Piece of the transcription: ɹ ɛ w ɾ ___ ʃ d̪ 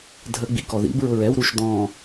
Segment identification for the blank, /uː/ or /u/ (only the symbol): u